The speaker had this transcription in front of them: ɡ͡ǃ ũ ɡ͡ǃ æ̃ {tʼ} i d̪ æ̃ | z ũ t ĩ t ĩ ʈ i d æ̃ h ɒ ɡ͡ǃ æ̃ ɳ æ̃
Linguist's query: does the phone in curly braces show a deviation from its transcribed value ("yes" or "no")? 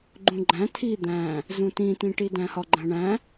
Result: yes